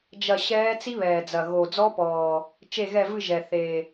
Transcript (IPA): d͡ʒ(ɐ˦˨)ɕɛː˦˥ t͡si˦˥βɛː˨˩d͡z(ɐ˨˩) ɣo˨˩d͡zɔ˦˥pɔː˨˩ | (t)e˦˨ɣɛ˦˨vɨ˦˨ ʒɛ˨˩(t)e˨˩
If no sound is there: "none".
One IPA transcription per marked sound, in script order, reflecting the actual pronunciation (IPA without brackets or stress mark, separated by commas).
ɐ˦˨, ɐ˨˩, t͡ʃ, θ